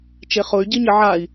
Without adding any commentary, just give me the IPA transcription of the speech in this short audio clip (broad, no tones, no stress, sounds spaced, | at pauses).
t͡ʃ e χ ʊ y̯ ɟ i ɲ ɪ ʕ a i̯